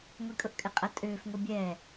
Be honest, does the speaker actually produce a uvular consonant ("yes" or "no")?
yes